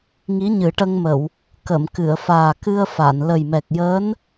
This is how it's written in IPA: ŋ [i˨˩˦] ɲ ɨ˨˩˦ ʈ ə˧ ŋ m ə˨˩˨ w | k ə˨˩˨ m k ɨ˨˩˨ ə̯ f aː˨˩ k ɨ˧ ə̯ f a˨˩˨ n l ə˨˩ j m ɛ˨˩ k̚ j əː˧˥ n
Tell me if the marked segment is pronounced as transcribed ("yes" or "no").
no